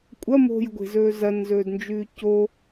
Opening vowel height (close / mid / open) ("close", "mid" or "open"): open